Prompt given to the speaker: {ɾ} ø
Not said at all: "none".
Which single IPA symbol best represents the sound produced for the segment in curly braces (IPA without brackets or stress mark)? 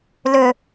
l